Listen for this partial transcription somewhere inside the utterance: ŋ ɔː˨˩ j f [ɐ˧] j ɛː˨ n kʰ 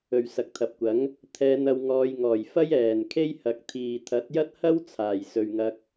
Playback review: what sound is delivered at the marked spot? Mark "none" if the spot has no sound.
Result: ɐ˥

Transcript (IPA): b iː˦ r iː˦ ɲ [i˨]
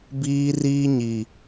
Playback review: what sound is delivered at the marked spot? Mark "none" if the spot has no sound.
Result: i˨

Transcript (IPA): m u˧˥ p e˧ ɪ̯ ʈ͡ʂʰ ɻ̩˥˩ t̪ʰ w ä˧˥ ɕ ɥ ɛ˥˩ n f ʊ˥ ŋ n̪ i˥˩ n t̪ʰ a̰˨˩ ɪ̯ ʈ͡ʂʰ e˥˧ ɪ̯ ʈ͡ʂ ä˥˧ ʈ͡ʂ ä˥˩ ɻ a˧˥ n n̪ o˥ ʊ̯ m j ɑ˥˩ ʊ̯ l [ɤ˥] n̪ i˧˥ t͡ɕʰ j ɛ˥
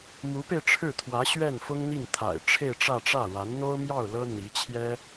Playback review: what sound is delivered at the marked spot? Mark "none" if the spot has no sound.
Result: ɤ˥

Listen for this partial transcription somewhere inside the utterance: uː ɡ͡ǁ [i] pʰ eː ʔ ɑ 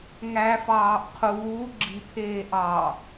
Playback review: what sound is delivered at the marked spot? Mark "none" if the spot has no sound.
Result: i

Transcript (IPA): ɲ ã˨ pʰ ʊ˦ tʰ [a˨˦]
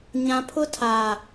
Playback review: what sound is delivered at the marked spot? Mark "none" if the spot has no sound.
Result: a˨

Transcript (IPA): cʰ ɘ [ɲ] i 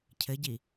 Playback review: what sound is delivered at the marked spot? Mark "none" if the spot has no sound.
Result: ɟ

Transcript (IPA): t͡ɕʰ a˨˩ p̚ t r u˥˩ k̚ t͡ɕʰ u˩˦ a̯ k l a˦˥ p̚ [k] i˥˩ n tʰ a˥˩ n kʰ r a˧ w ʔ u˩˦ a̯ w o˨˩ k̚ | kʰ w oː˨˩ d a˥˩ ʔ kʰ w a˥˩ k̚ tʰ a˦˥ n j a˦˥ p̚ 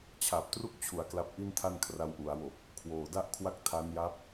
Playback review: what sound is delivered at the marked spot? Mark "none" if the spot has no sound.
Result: ʔ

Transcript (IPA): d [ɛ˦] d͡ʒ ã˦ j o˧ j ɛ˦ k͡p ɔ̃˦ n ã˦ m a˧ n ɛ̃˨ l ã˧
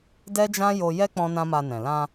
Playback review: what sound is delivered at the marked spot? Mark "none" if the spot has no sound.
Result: ɛ˦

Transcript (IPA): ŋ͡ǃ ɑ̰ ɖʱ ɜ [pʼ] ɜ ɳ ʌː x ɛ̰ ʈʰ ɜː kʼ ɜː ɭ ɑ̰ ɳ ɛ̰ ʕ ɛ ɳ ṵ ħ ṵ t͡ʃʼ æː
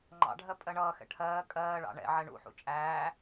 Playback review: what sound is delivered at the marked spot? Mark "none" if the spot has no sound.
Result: pʼ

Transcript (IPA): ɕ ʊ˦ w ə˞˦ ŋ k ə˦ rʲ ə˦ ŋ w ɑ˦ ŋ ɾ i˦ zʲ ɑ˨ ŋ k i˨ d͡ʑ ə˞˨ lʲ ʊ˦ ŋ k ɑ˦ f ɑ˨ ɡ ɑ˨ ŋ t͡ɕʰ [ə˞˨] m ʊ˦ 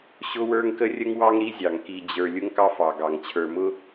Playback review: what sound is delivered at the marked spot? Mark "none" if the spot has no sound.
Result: ə˞˨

